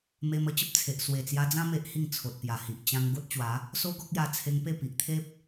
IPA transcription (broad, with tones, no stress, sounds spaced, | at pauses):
m e˧ m ə˧ t͡ɕ ə˦ p̚ t͡sʰ e˨ ʔ s w e˨˩ t͡s j a˧ d͡z ã˦ m e˦ ʔ h i˥˧ ŋ t͡sʰ o˨ t̚ p j a˨˩ h i˨ ʔ t͡ɕ ã˧ ŋ ɡ o˦ t̚ t͡ɕ w a˨˦ | s o˦ ɡ ɔ˦ k̚ j a˧ t͡sʰ e˧ ŋ p e˥˧ p i˨ ʔ t̪ʰ e˦ p̚